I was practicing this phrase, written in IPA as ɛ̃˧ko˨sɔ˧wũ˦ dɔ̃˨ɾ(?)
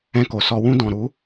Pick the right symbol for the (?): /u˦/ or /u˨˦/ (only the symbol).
u˨˦